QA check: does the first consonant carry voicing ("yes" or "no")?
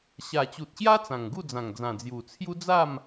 no